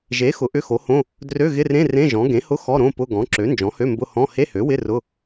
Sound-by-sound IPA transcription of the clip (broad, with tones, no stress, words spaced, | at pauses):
ʒe˩˥ xʊ˩˥ʔʏ˧˥˧xo˩˥hõ˧˥˧ | drø˧˥˧ɣɪ˧˥˧rẽ˧˥˧ rẽ˧˥˧ʒɔ̃˩˥ ɡẽ˩˥hʊ˧˥˧ xɔ˧˥˧ɾõ˧˥˧pʊ˧˥˧ ɡɔ̃˩˥ǁø˩˥ nd͡ʒɔ̃˩˥hø˧˥˧mbʊ˧˥˧ hɔ̃˧˥˧ he˧˥˧hø˩˥wɪ˧˥˧ rʊ˧˥˧